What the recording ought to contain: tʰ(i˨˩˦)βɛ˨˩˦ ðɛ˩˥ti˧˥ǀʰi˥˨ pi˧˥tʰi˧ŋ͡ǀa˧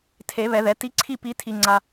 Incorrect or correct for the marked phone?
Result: incorrect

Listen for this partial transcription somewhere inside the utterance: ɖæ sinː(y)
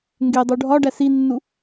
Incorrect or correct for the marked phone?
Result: incorrect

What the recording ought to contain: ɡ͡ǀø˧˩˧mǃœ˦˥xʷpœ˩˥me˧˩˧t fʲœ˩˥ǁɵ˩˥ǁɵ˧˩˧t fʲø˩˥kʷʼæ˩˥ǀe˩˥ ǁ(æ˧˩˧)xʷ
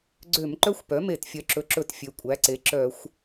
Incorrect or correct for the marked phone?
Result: incorrect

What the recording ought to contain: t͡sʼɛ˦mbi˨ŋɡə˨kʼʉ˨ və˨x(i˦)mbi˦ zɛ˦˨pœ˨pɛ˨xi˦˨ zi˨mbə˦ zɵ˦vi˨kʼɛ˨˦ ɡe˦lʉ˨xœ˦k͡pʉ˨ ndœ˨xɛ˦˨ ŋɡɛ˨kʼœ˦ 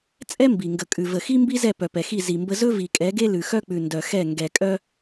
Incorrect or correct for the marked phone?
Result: correct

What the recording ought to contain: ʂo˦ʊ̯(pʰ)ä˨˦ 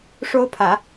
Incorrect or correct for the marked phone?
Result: correct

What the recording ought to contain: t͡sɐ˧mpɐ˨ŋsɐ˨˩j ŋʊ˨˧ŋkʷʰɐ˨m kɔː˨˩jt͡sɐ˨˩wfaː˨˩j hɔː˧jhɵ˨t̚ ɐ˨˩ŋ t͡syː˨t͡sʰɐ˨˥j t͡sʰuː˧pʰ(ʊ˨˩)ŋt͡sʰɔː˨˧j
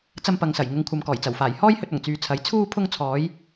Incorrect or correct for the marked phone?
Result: incorrect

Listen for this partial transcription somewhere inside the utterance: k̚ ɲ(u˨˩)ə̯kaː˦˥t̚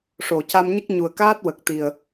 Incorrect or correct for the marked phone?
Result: correct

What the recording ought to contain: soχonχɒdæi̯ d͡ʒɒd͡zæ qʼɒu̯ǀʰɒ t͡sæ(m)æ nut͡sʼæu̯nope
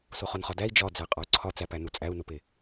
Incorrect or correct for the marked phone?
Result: incorrect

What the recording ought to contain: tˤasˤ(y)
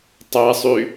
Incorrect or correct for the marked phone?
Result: correct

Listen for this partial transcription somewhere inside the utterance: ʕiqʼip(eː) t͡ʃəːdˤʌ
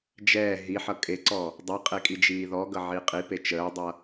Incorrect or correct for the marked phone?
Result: incorrect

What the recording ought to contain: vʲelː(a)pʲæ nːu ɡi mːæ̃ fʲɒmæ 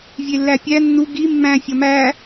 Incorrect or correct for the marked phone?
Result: incorrect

